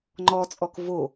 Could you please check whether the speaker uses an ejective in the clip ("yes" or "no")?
yes